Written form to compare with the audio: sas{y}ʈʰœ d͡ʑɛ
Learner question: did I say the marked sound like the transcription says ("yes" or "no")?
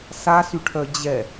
yes